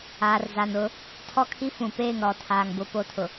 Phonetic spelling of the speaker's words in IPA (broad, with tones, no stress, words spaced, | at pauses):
aː˨rza˨n ʊ˨˦ | tʰɔ˦kʰi˦fũ˨peː˦˨ŋ ɾɔ˨tʰaː˨ŋ bʊ˦po˦tʰʊ˨